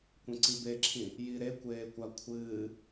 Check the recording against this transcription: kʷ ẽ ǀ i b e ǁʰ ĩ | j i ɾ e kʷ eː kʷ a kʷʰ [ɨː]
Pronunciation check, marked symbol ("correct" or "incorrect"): correct